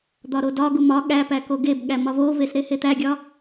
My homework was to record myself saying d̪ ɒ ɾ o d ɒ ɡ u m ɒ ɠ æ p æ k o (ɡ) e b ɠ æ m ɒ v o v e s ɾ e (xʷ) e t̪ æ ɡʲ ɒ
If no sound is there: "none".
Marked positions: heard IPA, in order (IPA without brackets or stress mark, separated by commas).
ɡ, h